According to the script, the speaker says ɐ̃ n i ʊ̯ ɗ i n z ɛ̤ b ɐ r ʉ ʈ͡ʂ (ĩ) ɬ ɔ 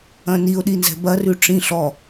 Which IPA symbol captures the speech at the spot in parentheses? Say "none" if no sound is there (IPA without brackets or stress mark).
ĩ